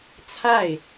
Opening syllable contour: falling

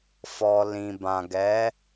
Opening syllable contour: low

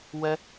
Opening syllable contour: high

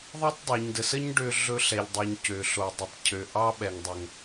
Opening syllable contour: high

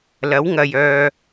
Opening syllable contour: rising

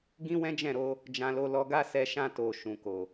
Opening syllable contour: high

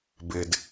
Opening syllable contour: low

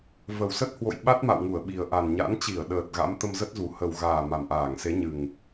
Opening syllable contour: low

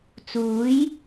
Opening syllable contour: rising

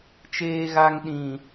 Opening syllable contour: low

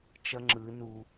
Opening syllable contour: high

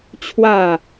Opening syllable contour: falling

